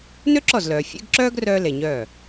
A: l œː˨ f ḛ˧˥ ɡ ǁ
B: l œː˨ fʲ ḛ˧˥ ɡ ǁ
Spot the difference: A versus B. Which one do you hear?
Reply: B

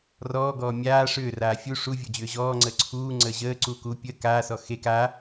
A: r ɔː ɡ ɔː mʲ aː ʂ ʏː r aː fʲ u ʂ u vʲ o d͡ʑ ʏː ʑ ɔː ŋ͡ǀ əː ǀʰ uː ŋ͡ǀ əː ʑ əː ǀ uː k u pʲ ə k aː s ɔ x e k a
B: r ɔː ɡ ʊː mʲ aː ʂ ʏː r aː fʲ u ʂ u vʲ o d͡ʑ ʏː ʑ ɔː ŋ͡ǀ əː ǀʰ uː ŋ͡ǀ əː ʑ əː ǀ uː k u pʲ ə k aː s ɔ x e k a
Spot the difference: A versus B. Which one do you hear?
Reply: A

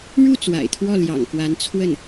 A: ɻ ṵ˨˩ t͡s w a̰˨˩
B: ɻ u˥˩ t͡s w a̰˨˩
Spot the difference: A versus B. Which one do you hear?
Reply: B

